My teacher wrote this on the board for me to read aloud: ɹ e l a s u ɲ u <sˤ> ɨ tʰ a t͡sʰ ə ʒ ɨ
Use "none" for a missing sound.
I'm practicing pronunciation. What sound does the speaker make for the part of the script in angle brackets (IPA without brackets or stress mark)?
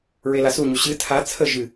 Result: ɕ